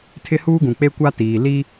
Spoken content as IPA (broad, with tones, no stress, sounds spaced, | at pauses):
tʰ ɪ˦ h uː˦ ɡ ũ˨ k͡p e˦ kʷ a˦ t iː˨ l i˦